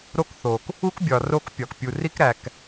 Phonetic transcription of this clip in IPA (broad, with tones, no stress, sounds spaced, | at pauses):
ɾ o˦ k θ o˨ k | u˦ k bʲ ɒ˨ r o˦ k pʲ ɒ˨ k pʲ u˨ r i˦ k ɾ æ˨ k